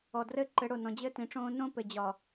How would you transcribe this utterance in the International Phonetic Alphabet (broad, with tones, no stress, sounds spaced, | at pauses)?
ɔ˨ d r ɘ˦ ǃ ɘ˨˦ ɽ o˨ n ɔ̃˨ d͡ʑ ɘː˦ t ĩ˨ ʈ͡ʂ õː˦ n õ˦ p ɘ˨ d͡ʑ ɒ˨